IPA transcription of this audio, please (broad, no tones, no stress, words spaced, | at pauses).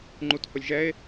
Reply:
ŋ͡ǃuthʊlʲʒɛe̯